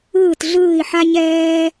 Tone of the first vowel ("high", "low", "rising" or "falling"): falling